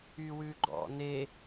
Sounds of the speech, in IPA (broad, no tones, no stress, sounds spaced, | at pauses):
y w ʉ ɡ͡ǃ ɔ̰ n e